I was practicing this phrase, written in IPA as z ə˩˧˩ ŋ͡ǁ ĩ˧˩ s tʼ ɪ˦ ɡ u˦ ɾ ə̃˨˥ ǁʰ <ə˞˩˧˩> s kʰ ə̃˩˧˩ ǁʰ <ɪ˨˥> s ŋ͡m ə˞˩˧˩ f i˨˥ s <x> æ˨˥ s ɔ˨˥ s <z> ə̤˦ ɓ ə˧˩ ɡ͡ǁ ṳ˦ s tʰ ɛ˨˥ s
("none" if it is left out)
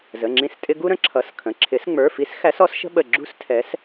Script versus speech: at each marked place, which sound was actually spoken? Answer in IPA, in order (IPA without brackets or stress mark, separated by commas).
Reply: ʌ˩˧˩, ɪ˨˥, x, ʃ